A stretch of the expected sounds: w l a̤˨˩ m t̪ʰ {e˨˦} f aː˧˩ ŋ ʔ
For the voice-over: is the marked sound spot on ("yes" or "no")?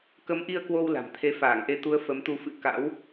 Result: yes